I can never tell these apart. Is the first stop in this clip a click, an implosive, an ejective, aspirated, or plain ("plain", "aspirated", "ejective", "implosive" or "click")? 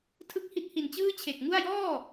aspirated